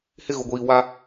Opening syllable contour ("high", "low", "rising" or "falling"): high